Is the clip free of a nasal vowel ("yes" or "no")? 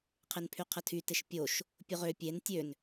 yes